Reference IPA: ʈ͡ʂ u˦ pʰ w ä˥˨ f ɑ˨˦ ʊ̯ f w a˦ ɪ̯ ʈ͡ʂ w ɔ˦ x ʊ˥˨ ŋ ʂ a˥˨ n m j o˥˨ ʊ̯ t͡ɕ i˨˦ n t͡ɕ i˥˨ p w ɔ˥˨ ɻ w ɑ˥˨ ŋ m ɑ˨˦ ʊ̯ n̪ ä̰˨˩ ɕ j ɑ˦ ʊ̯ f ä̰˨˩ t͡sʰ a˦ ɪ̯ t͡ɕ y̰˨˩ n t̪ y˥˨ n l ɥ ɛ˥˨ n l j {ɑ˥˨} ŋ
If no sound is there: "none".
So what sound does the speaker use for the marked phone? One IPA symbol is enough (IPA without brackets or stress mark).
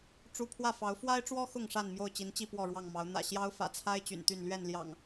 ɑ̰˨˩